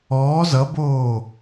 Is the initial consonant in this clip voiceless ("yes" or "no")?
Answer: no